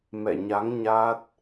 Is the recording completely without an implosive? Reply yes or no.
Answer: yes